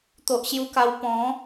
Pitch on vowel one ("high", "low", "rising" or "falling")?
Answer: low